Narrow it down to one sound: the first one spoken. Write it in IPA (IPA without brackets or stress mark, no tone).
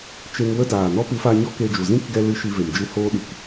t͡ʃ